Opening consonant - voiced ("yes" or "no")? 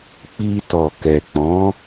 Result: no